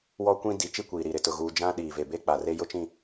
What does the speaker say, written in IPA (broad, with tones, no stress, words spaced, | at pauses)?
wɔ˦kʷĩ˦ di˨˦t͡ʃi˦kʷiː˨ɾi˨ ɾɪ˨tʊ˨ɣuː˨ d͡ʒã˦ɗiː˨ ve˨be˦k͡pa˨re˦ jʊ˦t͡ʃĩ˦˨